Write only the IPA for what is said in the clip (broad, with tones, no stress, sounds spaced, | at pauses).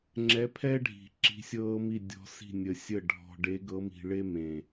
ŋ͡ǁ ɛ˧˥ pʰ ɛː˥ ɖʱ i̤˨˩˦ ǁ i̤˧˥ sʲ ɤː˥ m i˥˨ dʲ ɔ̤˧˥ s i̤˥˨ nʲ ə˧ sʲ ə˥˨ ɖʱ ɔ̤˧ ɖ e˧˥ ɡ ɤ˧˥ m i̤˧ ɭ e˥ m ẽ˨˩